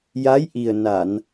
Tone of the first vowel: rising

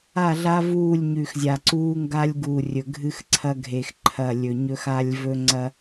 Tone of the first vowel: falling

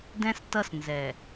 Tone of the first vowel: high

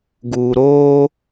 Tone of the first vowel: low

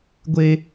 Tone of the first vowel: high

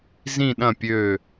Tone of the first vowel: falling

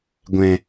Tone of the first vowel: low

